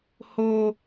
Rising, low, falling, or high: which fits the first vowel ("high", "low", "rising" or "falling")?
high